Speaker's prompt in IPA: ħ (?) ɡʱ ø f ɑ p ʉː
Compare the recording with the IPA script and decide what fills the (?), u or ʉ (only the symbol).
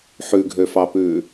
ʉ